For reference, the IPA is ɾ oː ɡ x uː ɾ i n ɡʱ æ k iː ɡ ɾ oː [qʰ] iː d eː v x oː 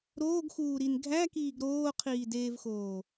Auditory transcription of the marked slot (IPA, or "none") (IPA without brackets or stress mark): qʰ